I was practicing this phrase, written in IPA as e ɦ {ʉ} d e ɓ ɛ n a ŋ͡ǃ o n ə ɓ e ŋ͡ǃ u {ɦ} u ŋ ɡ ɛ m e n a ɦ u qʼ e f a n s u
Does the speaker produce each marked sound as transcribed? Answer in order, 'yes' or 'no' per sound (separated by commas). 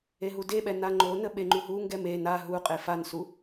no, yes